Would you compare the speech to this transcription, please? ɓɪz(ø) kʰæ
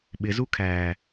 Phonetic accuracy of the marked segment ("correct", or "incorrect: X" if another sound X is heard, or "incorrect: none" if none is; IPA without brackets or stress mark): incorrect: u